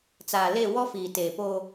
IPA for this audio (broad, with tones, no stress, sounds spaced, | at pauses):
t͡s aː˨ l e˦˨ w ɔ˦ f iː˨ t eː˨ p o˦